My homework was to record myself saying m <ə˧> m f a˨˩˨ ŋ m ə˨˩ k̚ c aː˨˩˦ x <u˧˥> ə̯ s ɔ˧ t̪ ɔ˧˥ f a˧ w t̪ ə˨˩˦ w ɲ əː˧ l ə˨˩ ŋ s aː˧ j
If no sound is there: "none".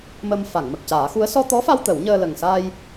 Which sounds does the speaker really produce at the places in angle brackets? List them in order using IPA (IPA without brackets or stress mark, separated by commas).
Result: ə˧, u˧˥